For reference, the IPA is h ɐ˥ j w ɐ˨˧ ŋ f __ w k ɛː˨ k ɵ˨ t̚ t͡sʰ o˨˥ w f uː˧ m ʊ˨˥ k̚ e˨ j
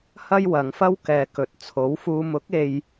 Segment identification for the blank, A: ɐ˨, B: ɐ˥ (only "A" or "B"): B